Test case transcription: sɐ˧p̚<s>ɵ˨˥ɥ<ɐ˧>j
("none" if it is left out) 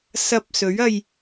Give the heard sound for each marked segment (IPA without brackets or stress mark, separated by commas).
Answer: s, ɐ˧